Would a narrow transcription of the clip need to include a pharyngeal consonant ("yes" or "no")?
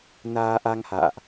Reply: no